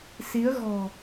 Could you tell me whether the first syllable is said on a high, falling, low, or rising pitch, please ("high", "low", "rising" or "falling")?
rising